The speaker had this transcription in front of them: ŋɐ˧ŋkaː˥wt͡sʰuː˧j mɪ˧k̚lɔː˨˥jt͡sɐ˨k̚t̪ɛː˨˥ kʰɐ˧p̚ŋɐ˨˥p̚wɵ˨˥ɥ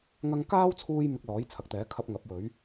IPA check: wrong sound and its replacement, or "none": t͡s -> t͡sʰ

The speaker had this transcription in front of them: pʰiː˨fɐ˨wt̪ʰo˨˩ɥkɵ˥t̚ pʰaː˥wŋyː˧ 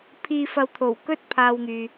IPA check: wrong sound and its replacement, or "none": ɥ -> w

